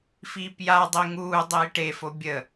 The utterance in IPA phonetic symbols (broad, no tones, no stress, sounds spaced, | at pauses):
f iː p j a dˤ i ŋ uː dˤ iː ʈ e f o bʲ ə